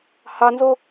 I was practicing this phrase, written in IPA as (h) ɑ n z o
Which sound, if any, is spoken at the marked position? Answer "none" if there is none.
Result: h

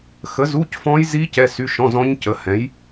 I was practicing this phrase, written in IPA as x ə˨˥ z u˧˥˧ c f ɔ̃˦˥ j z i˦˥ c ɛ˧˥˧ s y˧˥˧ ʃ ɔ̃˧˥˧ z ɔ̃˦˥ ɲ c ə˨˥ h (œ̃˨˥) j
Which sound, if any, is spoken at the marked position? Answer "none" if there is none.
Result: ɛ̃˨˥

